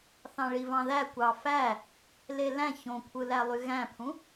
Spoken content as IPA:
θ ɑ̃ ɭ i v ɑ̃ ð æ kʷ ɑ f æ | l e l æ̃ ç õ kʷʰ ɯ l æ lˠ y ɣ æ̃ pʰ ũ

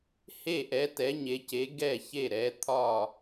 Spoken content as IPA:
h e˥˩ ʔ ɛ˨˥ t ɛ˨˥ ɲ e˨˥ c e˨˥ ɡ ɛ˥˩ ç e˥˩ ɾ ɛ˨˥ t̪ʰ ɒ˥˩

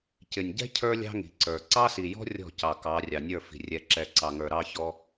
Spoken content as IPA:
c ɪ˨ nʲ ɟ ɛ̤˦ cʰ ə˞˦ lʲ ɑ̤˦ ŋ i̤˨ ǀ ə˞˨ ǀ ɑ˦ s i˨ j ɔ̤˦ rʲ ɔ̤˦˨ c ɑ˨ k ɑ˨˦ rʲ ɑ˨ nʲ ə˞˦˨ f i̤˨ rʲ ɛ˨ ǁ ɛ˨˦ ǀ ɑ˨ ŋ ə˞˨ ɾ ɑ˦ ç ɔ˦

